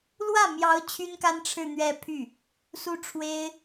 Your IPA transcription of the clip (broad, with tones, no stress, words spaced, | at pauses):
lwä˥˩mjɑ˧˥ʊ̯ t͡ɕʰy˥nka˥n ʈ͡ʂʰɻ̩˥˧n̪ɥɛ˥˧pʰy˥˩ | su˥ʈ͡ʂʰwe˥ɪ̯